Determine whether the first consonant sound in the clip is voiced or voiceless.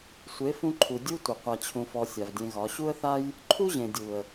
voiceless